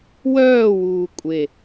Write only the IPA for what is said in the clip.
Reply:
wœːwuː kʷʼe

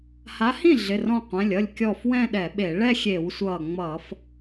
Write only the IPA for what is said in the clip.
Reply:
ha˨˦hĩ˥˩ɮɪ˩˧˩ rɔ̃˧˩ qʷɛ̃˩˧˩lʲʌ˥˩lʲ kʲɔ˧˩f wɛ̃˥˧ɗɛ˧˩˧ɓe˧˩˧ ɭɛ˥˧xʲe˧˩˧wsʷʌː˧˩ ŋ͡mʌː˧˩˧f

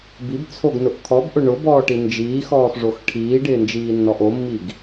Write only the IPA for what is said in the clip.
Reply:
bibt͡sʰoɡnʊʔ kʰɔbʔʊ ɳʊbɔːʈi nd͡ʒiːxɔːxʐox ʈʰiːɖɪːnd͡ʒiːnːɔʔ omːiɡ

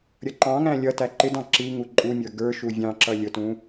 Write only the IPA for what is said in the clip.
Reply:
ɾʲʌǃɑ̃ŋæ̃ lʲʌ tæǃɪdɑ̃ ǁi ŋuǃʼumʲə˞ ɡə˞ ʃuvʲɑ̃ǁʌ lʲʊtũ

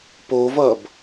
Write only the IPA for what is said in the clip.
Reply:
povʌb

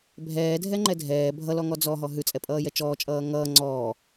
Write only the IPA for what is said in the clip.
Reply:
bʱɛːdʱɛŋ͡ǃɛ dʱɛː bʱʌlɔŋɔ d͡zɔɦɔ ɦʉt͡sʼɛpʼʌːjɛ t͡ʃɔːt͡ʃʼʌː ŋʌː ŋ͡ǀɔː

